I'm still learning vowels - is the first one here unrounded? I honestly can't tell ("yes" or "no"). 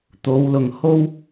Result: no